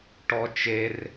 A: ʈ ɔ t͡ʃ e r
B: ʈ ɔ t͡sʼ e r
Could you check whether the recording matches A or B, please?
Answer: A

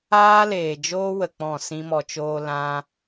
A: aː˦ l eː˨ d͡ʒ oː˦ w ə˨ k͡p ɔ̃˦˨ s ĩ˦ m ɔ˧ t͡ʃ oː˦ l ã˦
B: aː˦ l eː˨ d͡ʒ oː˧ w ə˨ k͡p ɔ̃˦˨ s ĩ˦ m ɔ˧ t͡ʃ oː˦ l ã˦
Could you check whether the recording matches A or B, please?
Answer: A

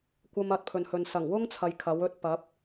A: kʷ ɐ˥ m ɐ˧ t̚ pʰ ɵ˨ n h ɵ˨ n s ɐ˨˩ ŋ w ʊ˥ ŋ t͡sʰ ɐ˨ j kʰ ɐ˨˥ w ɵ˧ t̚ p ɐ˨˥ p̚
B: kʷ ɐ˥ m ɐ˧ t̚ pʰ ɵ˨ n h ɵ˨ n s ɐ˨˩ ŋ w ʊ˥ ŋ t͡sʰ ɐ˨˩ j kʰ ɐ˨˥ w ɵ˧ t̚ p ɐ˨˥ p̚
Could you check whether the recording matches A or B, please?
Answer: A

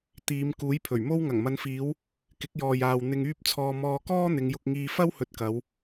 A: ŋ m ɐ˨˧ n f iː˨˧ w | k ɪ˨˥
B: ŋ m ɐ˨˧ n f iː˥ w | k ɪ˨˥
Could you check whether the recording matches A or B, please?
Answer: A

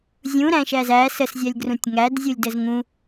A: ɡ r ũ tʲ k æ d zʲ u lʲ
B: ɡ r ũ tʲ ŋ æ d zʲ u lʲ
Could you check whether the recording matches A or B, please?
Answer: B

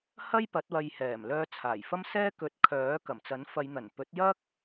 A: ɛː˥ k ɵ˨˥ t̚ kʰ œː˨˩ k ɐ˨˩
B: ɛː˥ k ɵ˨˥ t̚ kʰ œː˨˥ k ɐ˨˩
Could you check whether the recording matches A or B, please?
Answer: B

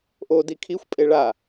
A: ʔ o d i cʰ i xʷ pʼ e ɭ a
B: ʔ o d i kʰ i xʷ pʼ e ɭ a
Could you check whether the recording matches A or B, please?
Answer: B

